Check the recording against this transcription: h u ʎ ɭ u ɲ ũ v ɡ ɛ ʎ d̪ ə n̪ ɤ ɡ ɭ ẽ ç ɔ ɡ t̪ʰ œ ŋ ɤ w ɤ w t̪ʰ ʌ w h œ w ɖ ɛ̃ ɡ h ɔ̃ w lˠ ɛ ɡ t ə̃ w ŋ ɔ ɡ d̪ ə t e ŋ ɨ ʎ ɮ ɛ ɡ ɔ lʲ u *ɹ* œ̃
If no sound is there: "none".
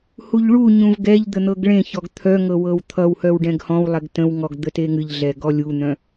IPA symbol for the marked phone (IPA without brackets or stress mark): n̪